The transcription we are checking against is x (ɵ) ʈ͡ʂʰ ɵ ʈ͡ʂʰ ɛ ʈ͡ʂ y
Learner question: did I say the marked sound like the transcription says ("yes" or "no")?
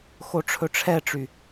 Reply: no